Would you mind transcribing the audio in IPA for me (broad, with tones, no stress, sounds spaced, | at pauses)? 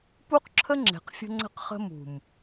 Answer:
p u˦ q ǁʰ ə˦ ŋ͡ǁ e̤˨ q fʲ ə̤˦ ŋ͡ǀ ə̤˦ q χ ə̤˦ m ṳ˨ m